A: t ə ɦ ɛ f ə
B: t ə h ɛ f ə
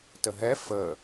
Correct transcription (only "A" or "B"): A